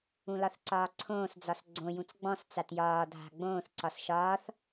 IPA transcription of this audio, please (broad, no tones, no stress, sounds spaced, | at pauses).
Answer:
ũ l ɒ θ ǀ ɒː ǀʰ õː s d͡z ɒ s ɡ͡ǀ õ j ũ t͡s ɡ͡b ɔ̃ s t͡s a t j ɒː dʱ a̤ ɡ͡b õː θ ǀ ɒ s ʃ ɒː θ